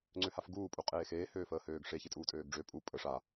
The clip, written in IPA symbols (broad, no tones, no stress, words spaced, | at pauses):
ŋ͡ǀøhafɡuː pʼuqʼeːxeː høːfəːhøːɡʂe çitʼuːtʼøːɡɖ͡ʐø pʼu pʼə ʂa